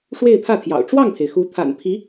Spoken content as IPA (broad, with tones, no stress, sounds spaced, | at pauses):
ʂ w e˥˧ ɪ̯ pʰ ä˥˩ t̪ʰ j ɑ̰˨˩ ʊ̯ ʈ͡ʂ w ɑ˥˩ ŋ pʰ e˩ ɪ̯ x u˧˥ t̪ʰ a̰˨˩ n pʰ i˧˥